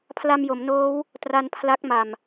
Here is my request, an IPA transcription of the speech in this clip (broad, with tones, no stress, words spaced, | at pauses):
pʰla˧mjo˩˦mnoː˦˥w | tra˧npʰla˦˥k̚ma˨˩m